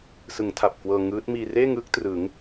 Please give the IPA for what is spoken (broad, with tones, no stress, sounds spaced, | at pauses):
s ɯ˩˦ ŋ tʰ a˨˩ p̚ k w ɤː˧ ŋ ɯː˦˥ t̚ m iː˧ r eː˥˩ ŋ ɯː˦˥ k̚ t r ɯ˩˦ ŋ